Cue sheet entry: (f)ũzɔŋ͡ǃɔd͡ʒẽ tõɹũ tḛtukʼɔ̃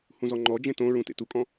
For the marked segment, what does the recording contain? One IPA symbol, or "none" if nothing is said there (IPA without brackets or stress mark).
h